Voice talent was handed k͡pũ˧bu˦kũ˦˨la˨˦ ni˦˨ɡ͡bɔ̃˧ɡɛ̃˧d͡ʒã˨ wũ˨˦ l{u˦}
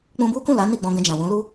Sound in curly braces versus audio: correct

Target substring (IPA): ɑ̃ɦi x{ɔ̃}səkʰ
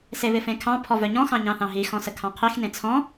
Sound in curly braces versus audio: correct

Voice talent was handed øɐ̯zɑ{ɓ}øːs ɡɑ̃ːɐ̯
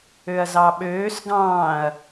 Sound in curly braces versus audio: correct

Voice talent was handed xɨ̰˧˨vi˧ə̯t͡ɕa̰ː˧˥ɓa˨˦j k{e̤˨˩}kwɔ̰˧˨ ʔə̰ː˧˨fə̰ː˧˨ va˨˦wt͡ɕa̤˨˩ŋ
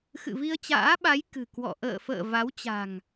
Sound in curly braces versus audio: incorrect: ɨ̤˨˩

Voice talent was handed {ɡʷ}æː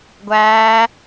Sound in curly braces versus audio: correct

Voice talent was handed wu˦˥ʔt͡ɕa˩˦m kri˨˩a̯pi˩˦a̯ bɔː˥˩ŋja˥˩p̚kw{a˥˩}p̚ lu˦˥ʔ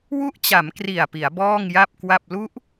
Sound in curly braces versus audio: correct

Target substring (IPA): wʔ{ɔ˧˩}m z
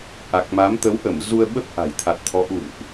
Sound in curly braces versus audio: incorrect: ə˧˩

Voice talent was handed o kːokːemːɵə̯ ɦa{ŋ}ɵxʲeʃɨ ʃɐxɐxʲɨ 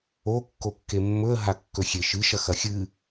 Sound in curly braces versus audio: incorrect: kː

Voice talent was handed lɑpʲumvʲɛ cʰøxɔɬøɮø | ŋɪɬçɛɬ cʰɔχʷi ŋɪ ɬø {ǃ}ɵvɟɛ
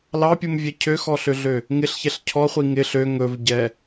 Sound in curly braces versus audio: incorrect: ŋ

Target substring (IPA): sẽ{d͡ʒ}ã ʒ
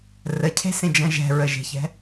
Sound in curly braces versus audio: correct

